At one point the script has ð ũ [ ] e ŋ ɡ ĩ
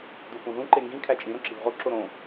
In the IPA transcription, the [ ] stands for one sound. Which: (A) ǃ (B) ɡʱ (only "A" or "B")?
A